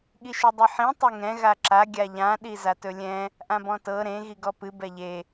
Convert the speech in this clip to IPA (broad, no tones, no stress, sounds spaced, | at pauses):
ɠ i ʃ ɨ dˤ ɨ ħ ĩ tˤ e ŋ ɛ̃ ɣ a ǁ a ɡʲ a ʎ ã ɗ i z a t ɵ lʲ ɛ̃ | ʔ ã b ɔ̃ t ɤ ɾ ẽ ɣ i ɡ ɔ p ɨ b ɛ ʎ e